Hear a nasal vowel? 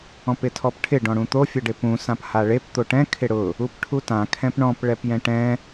yes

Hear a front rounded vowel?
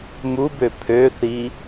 yes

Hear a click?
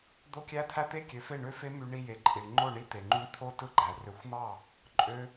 yes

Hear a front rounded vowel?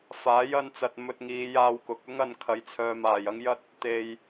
yes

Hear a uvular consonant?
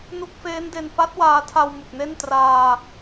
no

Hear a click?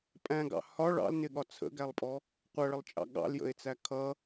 no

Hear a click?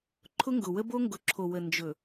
yes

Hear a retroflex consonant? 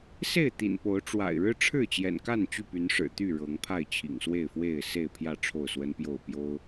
yes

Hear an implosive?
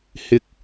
no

